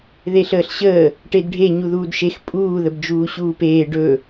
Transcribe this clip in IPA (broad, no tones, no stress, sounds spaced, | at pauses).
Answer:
ð e ɬ əː ɬ ɕ əː | ʈ e d ɖʱ e ɲ u ð uː d ʃ e x pʼ uː ð ə b d͡ʒ uː ɕ uː p eː ɖ ɵ